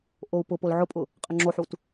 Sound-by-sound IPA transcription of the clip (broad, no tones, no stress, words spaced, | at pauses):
ʔou̯pʊpol ʕʊpʼʊ | qʼəŋ͡ǁoħut